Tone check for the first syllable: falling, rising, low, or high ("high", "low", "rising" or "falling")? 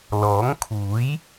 rising